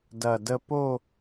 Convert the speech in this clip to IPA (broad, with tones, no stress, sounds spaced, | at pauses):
d ɐ˨˩ d ə˧ p o˥˧